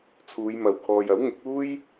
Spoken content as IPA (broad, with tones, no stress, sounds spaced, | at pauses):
t͡sʰ uː˨˧ j m ɐ˨ w kʰ ɔː˨ j ɐ˨˥ w ŋ ɪ˨˥ k̚ uː˥ j